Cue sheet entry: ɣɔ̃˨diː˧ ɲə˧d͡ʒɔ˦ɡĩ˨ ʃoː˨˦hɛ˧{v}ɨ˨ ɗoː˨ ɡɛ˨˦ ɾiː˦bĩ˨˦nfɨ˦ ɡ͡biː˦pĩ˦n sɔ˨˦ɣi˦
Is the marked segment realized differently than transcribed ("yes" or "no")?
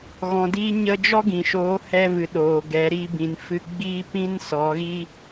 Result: no